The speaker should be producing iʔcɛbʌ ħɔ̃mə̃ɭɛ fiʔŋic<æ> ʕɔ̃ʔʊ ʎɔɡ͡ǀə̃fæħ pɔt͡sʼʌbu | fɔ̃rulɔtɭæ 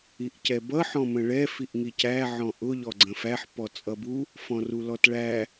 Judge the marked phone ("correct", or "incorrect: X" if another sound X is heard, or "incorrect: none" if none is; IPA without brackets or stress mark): correct